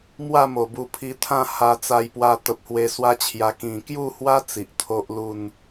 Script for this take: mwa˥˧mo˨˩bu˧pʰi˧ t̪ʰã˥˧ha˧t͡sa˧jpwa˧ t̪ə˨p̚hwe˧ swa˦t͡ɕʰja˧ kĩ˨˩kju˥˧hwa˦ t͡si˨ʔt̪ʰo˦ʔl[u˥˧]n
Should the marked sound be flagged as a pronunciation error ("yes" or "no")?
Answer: no